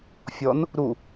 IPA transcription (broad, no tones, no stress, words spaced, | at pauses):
fʲɔn | ɾu